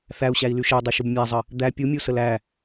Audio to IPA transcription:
θ æ u̯ ɕ æ i̯ l y ʃ ə u̯ dˤ e ʃ u b mʲ æ zˤ ə | d̪ æ pʲ u mʲ u s ə l æ

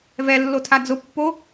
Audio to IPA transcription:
v ɛ lː o tʰ a d͡z ʊ pː o

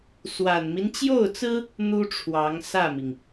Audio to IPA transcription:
s w a˨˩ n m i˦ n t͡ɕ j o˥˩ ʊ̯ t͡s ɹ̩˥ | n̪ u˥ ʈ͡ʂʰ w ɑ˧˥ ŋ s ä˥˩ m i˩ ŋ

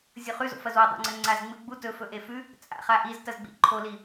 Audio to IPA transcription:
zʲ o χ ʉ z o̰ f ɐ z w ɐ dˤ o̰ ŋ͡ǀ ɐ ŋ͡ǀ a z ŋ͡m ɨ ɡ͡b u t ɵ f ɵ ʔ e f ʉ | t͡sʼ a̰ χ a ʔ i z t ɐ z ɡ͡b ḭ ǃʰ o l i

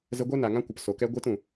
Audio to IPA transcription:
z ə˧ ɡʷ ɛ˦ n a˨ ŋ ã˦ kʷ ə˨ p s o˨ k ɛ˦ ɡʷ e˦ t ũ˨

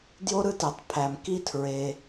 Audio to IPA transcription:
d j o˥ ɾ ɯ˥ t e˨ tˤ pʰ æ˨ m k i˦ tʰ ɹ e˨

